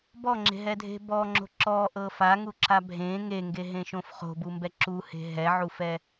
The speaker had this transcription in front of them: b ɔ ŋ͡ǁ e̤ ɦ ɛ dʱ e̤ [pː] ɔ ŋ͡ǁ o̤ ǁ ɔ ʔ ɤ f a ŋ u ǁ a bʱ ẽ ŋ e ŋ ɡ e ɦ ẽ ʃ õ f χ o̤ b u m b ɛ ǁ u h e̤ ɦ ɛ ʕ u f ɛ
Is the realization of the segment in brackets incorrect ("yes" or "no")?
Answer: yes